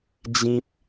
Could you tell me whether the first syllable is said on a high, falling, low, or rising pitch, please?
high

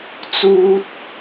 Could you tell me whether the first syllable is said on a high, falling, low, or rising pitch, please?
high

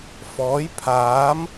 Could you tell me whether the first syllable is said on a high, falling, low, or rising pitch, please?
rising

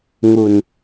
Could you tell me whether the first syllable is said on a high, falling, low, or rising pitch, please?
low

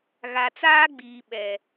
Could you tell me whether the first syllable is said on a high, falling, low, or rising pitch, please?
low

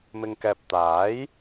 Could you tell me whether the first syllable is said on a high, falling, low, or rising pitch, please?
low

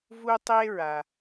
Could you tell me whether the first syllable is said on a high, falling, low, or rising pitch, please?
high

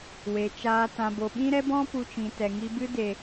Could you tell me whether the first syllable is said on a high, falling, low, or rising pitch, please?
low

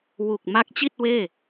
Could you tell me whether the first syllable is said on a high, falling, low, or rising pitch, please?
low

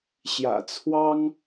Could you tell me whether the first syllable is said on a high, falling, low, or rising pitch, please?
low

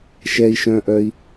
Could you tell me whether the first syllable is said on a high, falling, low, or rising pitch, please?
low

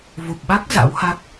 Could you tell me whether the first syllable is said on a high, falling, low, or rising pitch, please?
low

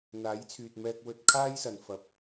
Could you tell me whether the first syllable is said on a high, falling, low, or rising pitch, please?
rising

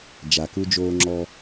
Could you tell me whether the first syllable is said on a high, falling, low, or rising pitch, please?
low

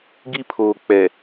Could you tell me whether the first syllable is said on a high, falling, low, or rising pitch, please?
high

